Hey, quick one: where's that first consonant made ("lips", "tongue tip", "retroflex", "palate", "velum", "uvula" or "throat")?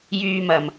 palate